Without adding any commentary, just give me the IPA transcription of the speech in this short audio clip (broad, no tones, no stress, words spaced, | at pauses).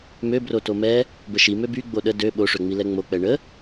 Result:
møbro tomɛ | bəʃi møby ɡ͡boɗə dø ɓoʂøŋ͡mi lɛŋ͡mok͡pɛ ɳə